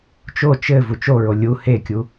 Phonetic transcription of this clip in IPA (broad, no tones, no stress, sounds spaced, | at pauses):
t͡ʃ o t͡ʃ ɘ v u t͡ʃ o ɹ o lʲ u h e kʲ u